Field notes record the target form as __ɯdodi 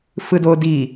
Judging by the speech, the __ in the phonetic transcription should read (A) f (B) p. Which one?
A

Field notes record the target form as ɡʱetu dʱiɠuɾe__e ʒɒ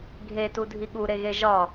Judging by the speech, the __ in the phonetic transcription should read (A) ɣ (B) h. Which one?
A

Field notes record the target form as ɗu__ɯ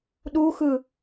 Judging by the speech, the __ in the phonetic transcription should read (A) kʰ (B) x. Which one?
B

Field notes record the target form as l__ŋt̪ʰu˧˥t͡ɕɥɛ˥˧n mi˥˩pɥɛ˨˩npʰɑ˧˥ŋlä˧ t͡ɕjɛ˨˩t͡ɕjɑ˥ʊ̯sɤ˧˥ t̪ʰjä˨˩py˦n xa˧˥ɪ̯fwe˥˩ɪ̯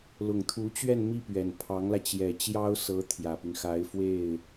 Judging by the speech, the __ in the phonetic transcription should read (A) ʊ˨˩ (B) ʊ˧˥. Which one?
A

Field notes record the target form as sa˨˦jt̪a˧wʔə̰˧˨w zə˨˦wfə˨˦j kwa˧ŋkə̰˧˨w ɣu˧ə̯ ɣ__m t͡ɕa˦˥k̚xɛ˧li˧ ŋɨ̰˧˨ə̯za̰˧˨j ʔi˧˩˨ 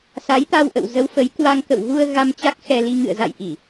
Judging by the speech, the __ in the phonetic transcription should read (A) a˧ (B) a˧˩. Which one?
A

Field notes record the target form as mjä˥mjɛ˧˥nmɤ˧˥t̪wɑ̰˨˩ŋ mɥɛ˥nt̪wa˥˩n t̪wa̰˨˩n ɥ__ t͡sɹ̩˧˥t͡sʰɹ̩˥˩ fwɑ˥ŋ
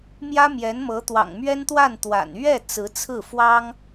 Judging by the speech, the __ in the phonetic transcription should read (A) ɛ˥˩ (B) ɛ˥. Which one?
A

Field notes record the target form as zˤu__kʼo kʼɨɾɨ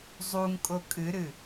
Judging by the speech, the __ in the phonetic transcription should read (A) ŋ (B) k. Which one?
A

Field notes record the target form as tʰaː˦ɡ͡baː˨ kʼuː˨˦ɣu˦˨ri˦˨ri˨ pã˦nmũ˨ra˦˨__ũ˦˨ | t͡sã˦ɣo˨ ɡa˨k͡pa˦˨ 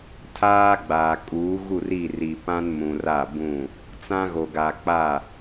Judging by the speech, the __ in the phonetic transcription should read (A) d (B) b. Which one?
B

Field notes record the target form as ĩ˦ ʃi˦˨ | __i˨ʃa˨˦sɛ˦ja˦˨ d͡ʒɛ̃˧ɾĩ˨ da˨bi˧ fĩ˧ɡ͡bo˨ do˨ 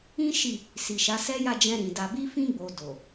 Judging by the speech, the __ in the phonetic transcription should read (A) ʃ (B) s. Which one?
B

